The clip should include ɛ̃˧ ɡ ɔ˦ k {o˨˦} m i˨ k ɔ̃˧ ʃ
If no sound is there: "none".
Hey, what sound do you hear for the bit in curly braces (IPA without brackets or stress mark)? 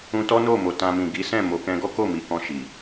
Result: o˦˨